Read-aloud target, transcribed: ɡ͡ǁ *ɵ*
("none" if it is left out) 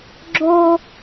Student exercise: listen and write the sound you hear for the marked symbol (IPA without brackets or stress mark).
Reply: o